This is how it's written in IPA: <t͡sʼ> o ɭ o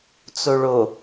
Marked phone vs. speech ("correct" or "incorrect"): incorrect